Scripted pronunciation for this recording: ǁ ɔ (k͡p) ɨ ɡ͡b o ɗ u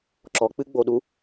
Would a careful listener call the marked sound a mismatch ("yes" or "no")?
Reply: no